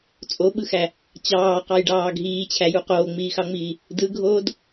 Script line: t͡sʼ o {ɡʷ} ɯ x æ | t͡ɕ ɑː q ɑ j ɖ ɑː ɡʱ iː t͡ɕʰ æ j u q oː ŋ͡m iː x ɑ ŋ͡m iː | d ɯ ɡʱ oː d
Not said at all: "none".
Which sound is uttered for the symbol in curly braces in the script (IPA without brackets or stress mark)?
ɓ